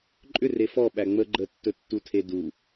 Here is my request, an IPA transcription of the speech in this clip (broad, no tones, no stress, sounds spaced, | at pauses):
ǃʼ ʏ r e f ɔ ɓ æ ŋ͡m ə ɡ͡ǃ ə tː ɵ tː u tʰ e d u